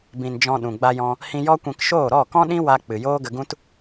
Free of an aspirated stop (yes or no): yes